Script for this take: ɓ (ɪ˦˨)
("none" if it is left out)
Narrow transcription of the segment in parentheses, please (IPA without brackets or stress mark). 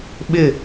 ɪ˦˨